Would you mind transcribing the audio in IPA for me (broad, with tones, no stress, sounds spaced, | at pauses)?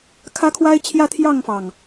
kʰ ä˦ kʰ w a˦ ɪ̯ t͡ɕʰ j ä˦ t̪ʰ j ɑ˥˨ ŋ f ɑ˩ ŋ